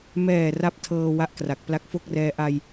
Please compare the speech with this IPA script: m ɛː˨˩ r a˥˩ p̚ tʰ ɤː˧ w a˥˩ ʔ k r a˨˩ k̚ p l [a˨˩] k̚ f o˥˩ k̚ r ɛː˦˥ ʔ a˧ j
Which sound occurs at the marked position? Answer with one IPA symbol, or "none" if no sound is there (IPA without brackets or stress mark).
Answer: a˦˥